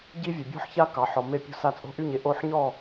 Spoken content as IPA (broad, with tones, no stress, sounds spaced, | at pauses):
ɟ i˥ vʲ e˧ bʲ ɔ̤˥ ħ ç a˥ k ɑ˧ ħ ɔ˧ m e˥˧ pʲ o̤˥ s a˥˧ t͡sʼ o̤˥ ʔ y˥˧ ɲ e˥˧ ʔ o˥˧ ħ ɲ ɔ˥˧